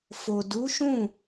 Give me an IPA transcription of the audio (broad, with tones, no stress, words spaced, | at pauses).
fo˨du˨˦ʃũ˦˨